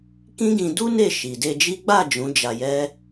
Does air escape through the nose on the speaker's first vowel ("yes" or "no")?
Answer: yes